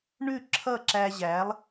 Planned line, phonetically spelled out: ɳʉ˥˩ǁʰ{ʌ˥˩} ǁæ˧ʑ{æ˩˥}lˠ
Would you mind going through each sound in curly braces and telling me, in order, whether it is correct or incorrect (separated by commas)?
correct, correct